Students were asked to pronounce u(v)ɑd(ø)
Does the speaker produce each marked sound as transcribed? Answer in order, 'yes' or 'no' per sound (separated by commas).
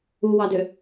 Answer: no, yes